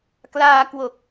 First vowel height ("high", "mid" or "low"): low